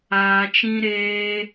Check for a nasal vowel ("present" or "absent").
present